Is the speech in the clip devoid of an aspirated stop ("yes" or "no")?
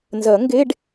yes